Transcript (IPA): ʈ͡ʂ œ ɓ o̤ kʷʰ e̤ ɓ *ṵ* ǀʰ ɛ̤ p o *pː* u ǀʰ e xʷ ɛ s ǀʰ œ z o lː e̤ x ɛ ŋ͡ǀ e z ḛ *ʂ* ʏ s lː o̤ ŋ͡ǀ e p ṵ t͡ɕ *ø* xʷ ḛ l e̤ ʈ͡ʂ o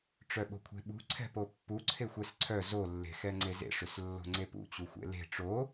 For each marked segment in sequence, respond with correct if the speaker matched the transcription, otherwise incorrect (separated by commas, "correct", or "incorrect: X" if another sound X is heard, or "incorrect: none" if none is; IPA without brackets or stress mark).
incorrect: ṳ, correct, correct, incorrect: u